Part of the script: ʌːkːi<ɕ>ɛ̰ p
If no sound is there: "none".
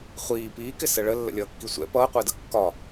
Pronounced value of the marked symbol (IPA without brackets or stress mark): sʷ